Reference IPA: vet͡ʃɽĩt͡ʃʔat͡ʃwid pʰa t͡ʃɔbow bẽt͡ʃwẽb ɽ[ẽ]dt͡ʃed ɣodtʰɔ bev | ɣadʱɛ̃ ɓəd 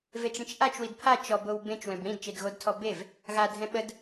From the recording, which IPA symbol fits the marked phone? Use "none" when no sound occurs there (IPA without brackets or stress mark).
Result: ĩ